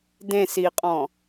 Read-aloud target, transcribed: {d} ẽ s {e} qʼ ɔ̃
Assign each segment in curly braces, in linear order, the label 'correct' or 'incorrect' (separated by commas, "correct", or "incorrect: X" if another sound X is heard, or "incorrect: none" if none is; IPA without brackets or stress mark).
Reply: correct, incorrect: i